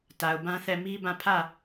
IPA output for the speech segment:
t a˨ ʊ̯ b ã˦ θ ɛ˦˨ m i˦ b ã˦˨ pʰ ä˦˨

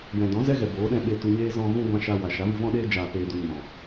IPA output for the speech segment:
j ɛ̃˨ d ɔ̃˨˦ z ɛ˦ ɣ ɛ˨ b oː˨˦ ɗ ɛ̃˧ ɓ e˧ t u˧ ɲ eː˦ z ɔ̃˧ ɣ ũ˦ ɡʷ ã˧ ʃ a˧ w a˨ ʃ a˨˦ v ɨ˧ v ɔ̃˦ ɗ eː˧ d͡ʒ aː˨ p eː˨ d u˨ ɲ ɔ̃˨

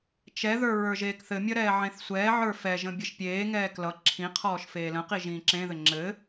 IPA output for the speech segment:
t͡ʃ ɛ ð ə˞ ɹ ə˞ ʒ eː k θ ɘ mʲ ʌ ɾ ɛː ʕ ẽ θ sʷ ɛː ʕ ə˞ f ɛ ʒ ə̃ bʲ ɘ ʃ pʲ eː ŋ ɛː k l ʌ ǁʰ ĩ qʰ ɔː ʃ f eː l ə̃ q i ʒ ĩː ǁ ẽ ð ɘ ŋ͡ǁ ɘ

